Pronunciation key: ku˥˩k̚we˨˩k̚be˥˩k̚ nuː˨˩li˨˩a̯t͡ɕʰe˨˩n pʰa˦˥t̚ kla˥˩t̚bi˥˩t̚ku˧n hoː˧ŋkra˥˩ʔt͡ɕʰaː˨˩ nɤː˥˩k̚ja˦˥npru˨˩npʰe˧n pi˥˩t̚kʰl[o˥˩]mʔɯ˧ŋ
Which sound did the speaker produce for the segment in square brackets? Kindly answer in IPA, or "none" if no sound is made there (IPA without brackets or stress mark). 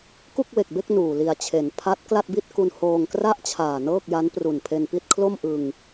o˥˩